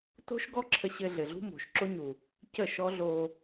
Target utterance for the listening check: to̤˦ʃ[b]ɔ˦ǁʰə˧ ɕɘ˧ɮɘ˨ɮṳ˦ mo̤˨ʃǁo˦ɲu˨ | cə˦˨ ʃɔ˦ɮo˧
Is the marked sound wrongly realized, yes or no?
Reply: yes